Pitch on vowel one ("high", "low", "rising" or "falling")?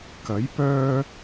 rising